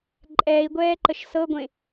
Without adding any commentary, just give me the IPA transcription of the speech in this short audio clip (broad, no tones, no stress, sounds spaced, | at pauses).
ǃʼ ɛː i̯ ɡʷ ɛː ǃ ə ʃ s ɤ ɡʷ ẽ